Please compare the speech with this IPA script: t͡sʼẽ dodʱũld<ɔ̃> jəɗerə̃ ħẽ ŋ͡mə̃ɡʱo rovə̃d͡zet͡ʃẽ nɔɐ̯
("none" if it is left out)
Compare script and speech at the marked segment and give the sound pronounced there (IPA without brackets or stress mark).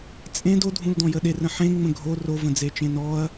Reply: ɔ̃